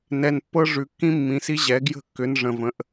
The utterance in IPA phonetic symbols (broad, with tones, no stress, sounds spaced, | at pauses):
n ɛ˨ n pː ɤ˦ ʐ ʉ˨ kː ĩ˦ mː ĩ˨˦ s i˦ ʑ ɛ˨˦ ɡ j ə̤˥˩ kː ʏ˨˦ n ʐ ə̃˨ v ə̃˨˦ ʔ